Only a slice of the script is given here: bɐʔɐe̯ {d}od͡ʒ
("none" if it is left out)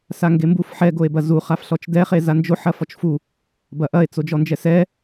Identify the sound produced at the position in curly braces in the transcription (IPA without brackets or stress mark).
t͡s